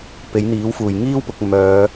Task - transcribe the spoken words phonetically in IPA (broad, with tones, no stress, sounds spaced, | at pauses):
p e˨˥ j n̪ iː˨˥ w f uː˨˩ j ŋ iː˥ w p ʊ˨ k̚ m œː˨˧